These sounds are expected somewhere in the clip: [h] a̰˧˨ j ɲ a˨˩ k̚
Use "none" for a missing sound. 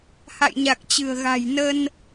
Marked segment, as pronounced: h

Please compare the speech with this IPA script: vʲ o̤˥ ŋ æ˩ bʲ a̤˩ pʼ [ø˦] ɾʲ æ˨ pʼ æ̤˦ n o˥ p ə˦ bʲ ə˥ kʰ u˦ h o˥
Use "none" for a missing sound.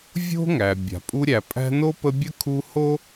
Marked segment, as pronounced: u˦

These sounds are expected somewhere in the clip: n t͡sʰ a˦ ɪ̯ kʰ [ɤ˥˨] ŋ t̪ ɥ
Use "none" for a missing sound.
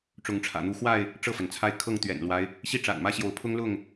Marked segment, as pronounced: ɤ˥˨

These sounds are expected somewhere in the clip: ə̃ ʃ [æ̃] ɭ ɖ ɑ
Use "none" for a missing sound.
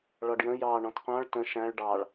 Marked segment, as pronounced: æ̃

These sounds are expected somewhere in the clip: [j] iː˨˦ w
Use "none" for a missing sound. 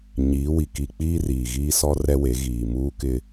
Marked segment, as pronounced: ɲ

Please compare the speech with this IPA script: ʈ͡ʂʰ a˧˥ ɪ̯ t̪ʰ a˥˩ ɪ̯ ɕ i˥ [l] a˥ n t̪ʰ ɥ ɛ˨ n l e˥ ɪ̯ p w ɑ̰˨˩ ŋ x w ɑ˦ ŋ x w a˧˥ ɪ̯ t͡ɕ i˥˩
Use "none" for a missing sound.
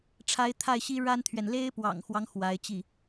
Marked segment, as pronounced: ɻ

